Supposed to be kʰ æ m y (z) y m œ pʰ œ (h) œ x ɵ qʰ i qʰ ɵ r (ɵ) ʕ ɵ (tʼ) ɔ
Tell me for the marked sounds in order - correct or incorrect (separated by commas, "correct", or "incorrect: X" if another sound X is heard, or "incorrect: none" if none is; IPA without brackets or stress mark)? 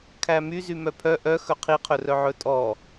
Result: correct, incorrect: ʔ, incorrect: œ, correct